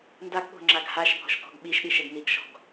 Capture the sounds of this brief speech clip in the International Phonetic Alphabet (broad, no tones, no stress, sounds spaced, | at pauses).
n d a ɡ ɠ o̤ ŋ͡ǁ a ɡ h a ʃ bʱ ɔ̤ ʃ k ɔ̤ ɡ ɓ i ʃ ɗ i ʃ ɛ ɡ n i ɡ ʃ ɔ̤ ɡ